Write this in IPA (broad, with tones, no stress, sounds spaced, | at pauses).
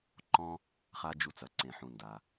ǃ ɔ̃˥ | χ a˥ d͡ʒ u˦ t͡s ɐ˨ ǀ ẽ˨ ħ ũ˨ n d a˩